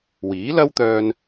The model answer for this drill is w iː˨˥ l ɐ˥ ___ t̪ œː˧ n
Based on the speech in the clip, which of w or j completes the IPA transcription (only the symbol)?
w